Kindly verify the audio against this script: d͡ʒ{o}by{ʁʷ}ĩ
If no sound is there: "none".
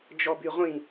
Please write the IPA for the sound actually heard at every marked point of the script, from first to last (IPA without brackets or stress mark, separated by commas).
ɔ, ʁʷ